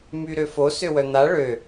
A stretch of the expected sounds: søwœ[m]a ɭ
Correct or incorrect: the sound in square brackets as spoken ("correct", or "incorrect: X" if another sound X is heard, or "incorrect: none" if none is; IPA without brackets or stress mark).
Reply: incorrect: n̪